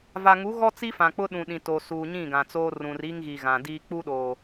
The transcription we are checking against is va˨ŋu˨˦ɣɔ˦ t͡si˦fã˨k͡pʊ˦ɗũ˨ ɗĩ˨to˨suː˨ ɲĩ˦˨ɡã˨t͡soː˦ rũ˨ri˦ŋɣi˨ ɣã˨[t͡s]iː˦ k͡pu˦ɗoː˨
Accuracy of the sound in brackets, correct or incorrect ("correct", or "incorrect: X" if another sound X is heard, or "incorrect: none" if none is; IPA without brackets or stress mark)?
incorrect: d